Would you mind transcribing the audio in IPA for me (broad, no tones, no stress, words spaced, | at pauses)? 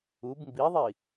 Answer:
ub mbiðˤi